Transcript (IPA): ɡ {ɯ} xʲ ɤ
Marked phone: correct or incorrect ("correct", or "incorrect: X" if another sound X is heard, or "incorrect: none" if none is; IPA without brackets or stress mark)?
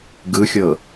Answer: correct